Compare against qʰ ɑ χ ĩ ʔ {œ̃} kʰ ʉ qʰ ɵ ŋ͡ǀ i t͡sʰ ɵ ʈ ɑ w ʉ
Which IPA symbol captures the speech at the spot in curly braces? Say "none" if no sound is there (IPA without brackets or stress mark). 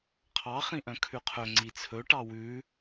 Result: œ̃